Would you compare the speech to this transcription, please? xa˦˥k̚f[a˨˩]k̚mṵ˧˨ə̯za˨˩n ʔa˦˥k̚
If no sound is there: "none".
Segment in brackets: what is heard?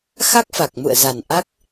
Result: a˨˩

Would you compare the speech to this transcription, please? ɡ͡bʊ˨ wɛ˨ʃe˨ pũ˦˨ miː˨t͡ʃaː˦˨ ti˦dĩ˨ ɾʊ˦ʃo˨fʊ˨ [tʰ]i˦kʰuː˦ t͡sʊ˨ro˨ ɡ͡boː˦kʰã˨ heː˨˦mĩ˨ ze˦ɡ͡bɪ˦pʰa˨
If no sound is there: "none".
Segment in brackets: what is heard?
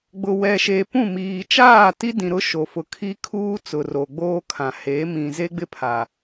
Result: kʰ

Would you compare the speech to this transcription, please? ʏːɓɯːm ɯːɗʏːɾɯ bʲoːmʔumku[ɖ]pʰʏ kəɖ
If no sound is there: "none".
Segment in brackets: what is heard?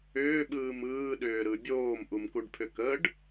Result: ɖ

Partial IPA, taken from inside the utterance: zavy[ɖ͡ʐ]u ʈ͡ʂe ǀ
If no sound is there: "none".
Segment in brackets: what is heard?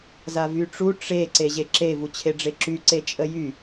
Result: ʈ͡ʂ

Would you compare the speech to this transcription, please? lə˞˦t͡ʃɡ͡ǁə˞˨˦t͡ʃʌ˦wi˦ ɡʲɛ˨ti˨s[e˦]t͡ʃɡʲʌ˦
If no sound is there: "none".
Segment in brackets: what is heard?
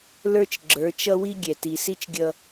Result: i˦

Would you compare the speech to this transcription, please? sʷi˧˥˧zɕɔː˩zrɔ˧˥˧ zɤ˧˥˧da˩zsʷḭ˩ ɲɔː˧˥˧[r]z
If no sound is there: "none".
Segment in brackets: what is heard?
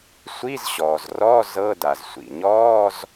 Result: none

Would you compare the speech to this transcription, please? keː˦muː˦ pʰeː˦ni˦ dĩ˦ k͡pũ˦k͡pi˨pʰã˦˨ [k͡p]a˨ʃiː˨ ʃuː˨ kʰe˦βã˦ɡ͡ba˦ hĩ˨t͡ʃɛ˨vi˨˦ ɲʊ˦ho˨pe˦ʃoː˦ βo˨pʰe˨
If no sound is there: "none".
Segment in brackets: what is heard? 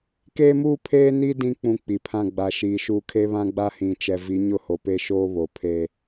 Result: ɡ͡b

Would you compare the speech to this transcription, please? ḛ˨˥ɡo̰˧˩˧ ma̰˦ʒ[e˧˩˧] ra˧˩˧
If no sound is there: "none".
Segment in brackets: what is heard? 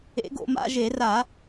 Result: e˧˩˧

